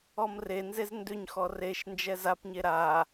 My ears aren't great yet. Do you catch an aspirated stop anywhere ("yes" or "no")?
no